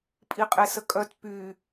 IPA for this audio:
pʼiqʼesəkʼœt py

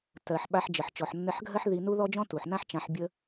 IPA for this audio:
tɜ˩ħ ɓa˧ħd͡ʒə˩ħ t͡ʃɔ˩ħnːɘ˧ħɡʱɜ˥ħ ði˧nu˥ ðɔ˥d͡ʒɔ̃˥tu˩ħ nã˥ħt͡ʃã˧ħ bʲə˥

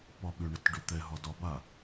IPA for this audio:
pɒɓʏ ɳətɖʏt̪ɛɦɒ dɒba

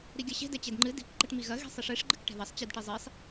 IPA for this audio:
ɾiɡʲɐɕe̤ dɛt͡ɕedŋ͡ǃɨ di̤k ɡ͡ǃɐʈmiɣɐ ɣi̤sˤiʂeʂ ɡ͡ǃɨkʈɛ̤ðɐsˤ t͡ɕidʈizˤisˤ

